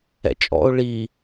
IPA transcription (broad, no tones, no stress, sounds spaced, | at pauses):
ɛ̰ t͡ʃʼ ɔ̰ ʊ̯ ɭ i